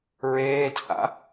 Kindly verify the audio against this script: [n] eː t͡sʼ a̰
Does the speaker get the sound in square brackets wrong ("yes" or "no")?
yes